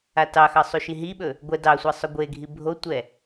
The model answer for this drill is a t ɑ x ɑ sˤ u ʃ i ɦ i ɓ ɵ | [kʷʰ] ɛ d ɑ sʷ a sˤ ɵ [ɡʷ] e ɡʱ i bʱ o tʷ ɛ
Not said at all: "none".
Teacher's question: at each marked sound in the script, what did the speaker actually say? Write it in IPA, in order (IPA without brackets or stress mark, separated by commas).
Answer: ɡʷ, ɡʷ